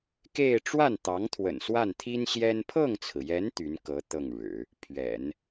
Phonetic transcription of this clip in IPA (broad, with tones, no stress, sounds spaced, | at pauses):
k e˥˧ ɪ̯ ʈ͡ʂ w a˥˩ n t̪ ɑ˧˥ ŋ t̪ʰ w ə̰˨˩ n s w a˥˩ n t̪ʰ i˥ n ɕ j ɛ˥ n pʰ ɤ˥˩ ŋ t͡sʰ ɹ̩˩ j ɛ˧˥ n t̪ y˧˥ n k ɤ˧˥ t̪ ɤ˥˩ ŋ ɻ ɻ̩˨˩˦ | pʰ ɥ ɛ̰˨˩˦ n